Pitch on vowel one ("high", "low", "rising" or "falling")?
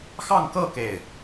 falling